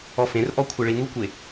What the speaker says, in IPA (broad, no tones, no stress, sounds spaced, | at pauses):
ɔ f ẽ r ʔ ɔ kʷʰ a ɭ i n̪ u kʷ e